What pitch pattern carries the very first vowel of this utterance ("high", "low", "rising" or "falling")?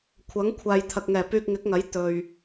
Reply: rising